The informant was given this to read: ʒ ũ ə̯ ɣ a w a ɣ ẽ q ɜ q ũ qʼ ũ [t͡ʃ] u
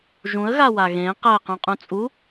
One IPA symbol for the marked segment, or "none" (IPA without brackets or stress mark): t͡sʼ